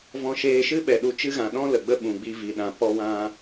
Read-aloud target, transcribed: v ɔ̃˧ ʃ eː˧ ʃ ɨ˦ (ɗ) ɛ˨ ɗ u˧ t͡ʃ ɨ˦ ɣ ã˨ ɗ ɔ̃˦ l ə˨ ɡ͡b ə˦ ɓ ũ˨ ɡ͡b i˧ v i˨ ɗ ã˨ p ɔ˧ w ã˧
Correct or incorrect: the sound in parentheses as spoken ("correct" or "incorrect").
incorrect